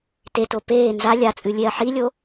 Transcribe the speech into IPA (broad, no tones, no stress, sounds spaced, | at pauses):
t e t o p eː n z a lʲ a t͡sʼ ɨ lʲ e ɐ̯ ħ i lʲ o